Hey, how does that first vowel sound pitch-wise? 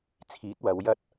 rising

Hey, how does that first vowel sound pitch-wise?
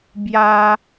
high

